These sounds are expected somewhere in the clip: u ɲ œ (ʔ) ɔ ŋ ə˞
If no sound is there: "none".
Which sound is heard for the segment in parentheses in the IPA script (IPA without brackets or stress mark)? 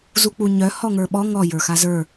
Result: h